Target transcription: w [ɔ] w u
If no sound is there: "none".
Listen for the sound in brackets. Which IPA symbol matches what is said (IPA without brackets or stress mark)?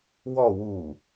ɔ